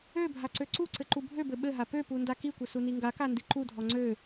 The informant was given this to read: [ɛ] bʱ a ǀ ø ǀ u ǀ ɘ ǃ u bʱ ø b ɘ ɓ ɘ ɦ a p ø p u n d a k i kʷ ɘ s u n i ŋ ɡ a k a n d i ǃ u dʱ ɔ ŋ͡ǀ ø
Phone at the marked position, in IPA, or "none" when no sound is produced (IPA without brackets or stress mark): ø